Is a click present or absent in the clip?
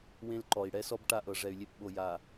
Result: present